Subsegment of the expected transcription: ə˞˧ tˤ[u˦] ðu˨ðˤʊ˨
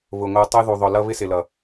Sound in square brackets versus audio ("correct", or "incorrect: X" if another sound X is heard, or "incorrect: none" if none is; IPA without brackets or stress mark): incorrect: u˧